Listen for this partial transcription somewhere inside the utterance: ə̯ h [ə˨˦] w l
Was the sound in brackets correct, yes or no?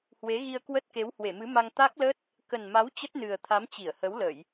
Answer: yes